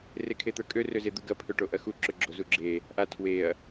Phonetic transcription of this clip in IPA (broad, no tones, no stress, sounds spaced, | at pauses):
r e kʰ e t̪ ə˞ kʼ ø r ø z e d̪ u ɡ ɐ pʰ ø ʈ o ʔ ɐ x u ǁ ʏ ɡ͡ǁ o z u ɡ͡ǁ e | ʔ a tʰ w e ɐ̯